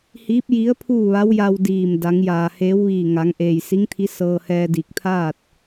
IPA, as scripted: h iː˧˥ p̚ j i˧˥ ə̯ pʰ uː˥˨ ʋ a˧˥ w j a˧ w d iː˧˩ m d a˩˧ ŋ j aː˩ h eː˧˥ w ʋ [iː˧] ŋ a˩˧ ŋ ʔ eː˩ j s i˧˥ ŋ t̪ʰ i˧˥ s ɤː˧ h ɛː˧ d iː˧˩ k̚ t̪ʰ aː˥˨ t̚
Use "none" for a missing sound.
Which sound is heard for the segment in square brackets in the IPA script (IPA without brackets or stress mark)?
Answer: iː˧˩